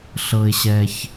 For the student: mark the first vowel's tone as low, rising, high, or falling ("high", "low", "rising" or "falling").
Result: low